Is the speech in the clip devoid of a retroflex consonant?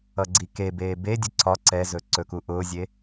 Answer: yes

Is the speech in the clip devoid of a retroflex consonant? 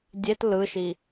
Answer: yes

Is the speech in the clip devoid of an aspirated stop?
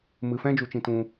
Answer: yes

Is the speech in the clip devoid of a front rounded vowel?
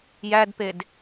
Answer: yes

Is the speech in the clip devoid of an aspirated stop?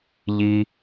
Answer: yes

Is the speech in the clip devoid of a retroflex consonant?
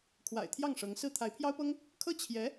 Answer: no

